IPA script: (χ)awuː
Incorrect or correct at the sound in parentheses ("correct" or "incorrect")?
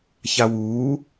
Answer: incorrect